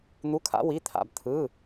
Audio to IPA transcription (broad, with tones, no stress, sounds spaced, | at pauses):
n̪ u˧˥˧ kʰ a̰˧˥ w i˧˥˧ t̪ʰ a̰˧ b t̪ʰ ɯ˧˥˧